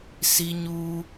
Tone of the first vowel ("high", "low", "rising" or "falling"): high